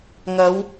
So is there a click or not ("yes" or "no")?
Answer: no